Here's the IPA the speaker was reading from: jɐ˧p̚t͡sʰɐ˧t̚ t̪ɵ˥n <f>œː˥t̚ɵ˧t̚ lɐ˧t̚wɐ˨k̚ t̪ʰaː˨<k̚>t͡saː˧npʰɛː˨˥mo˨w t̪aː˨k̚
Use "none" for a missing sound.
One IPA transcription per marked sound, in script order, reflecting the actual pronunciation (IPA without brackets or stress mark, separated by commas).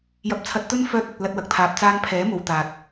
f, p̚